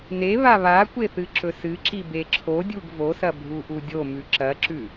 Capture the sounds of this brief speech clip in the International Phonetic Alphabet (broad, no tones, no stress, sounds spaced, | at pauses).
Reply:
n e β a β a kʷ e θ ɨ ǁ ɵ s ɨ ǁ i b e ǁʰ o dʲ u ɡ v o s ɐ bʱ u ʔ u dʲ o m ʉ ǁ ɐ ǁ ʉ